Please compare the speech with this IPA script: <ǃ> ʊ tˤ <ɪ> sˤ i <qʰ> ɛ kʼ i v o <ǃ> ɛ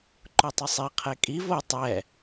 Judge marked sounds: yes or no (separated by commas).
yes, yes, yes, no